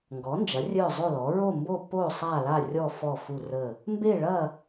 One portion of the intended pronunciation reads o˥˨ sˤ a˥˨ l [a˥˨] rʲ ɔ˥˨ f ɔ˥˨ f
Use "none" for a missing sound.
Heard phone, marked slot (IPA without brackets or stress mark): a˥˨